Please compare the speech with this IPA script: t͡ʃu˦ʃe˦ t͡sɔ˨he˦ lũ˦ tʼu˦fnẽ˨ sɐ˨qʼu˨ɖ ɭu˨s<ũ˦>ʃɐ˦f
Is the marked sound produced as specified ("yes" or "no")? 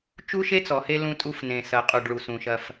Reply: no